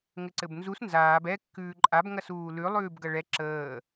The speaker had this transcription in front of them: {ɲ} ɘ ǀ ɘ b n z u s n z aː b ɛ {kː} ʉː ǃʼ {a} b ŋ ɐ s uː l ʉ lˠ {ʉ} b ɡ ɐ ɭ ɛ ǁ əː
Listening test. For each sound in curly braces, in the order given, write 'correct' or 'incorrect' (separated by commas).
incorrect, correct, correct, incorrect